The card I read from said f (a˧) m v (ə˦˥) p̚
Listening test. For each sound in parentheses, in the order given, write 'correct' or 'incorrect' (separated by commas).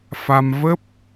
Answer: correct, correct